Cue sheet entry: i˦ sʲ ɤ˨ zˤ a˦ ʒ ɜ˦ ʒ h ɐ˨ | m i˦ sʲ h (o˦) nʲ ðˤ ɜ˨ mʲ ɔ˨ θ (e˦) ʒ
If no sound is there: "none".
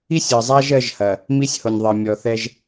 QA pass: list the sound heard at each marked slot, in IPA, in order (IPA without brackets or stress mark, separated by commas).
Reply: o˨, ɛ˦